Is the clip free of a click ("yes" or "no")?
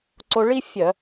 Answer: no